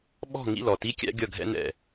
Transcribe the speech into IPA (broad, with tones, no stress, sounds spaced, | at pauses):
ɓ ɔ̤˥˨ ŋ ḭ˥˨ l ɔ˨˩ t i˧˥˧ kʲ æ̰˥ ɡʲ ʌ˥˨ ɡʱ ɛ̰˥ n ɛ̰˥˨